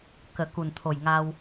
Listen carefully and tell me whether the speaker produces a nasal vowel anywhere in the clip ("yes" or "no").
no